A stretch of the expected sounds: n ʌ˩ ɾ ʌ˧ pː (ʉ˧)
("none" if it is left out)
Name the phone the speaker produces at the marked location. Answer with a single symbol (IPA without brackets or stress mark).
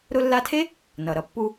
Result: u˧